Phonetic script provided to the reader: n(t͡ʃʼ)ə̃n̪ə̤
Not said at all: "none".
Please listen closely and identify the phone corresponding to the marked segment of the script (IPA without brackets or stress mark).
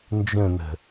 d͡ʒ